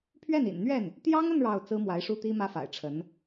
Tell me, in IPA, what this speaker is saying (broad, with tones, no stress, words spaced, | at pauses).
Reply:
pʰɥɛ˥˩nḭ˨˩n n̪ɥɛ˥˩n | t̪jɑ˥ŋə˥˧n ɻɑ˥˩ʊ̯ t͡sɹ̩˥mwa˧˥ɪ̯ʂu˥t̪i˥ mä˥fa̰˨˩ɪ̯ʈ͡ʂʰə˧˥n